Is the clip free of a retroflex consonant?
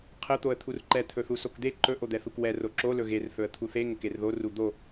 yes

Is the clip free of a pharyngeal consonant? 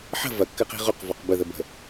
no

